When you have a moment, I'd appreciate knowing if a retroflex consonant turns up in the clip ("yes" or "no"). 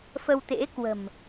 no